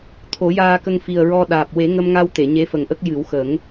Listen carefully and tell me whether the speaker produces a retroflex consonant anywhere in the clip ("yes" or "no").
no